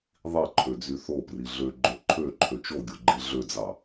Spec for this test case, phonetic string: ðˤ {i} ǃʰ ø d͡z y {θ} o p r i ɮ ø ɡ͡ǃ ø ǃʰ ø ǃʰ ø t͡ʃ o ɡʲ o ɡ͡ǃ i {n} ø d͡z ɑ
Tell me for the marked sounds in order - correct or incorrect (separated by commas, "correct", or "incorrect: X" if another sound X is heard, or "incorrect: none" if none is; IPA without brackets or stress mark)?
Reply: correct, correct, incorrect: ɮ